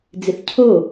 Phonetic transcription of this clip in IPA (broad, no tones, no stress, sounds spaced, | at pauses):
d͡z ɪ θ cʰ o